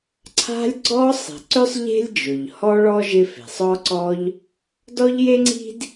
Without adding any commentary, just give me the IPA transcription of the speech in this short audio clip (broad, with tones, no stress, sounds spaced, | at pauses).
ǀʰ a̤˥ lʲ ɡ͡ǀ ɔ˥ sˤ i̤˩ ǀ ʏ˥ sˤ ʎ e̤˥ lʲ d͡ʒ ʊ˩ ʎ h ɔ˥ ɭ ɔ˥ ʒ ɪ˥ f e̤˩ sˤ ɔ˥ ǀ ɔ˥ ʎ | d ɔ˥ ʎ j e˥ ŋ͡ǀ i̤˥ d